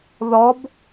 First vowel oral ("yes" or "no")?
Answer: yes